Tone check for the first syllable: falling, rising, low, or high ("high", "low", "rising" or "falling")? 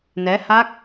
rising